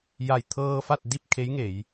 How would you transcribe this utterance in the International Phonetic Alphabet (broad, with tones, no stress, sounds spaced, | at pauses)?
j a˧˩ j t̪ʰ ɤː˧ f a˥˨ t̚ d i˥˨ p̚ kʰ e˧˥ j ŋ e˩˧ j